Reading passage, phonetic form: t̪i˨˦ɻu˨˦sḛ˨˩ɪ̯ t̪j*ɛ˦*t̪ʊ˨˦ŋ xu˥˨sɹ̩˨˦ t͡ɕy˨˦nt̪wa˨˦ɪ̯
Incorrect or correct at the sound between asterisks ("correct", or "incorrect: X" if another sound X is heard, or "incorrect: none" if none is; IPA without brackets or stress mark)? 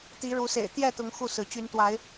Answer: incorrect: ɛ˥˨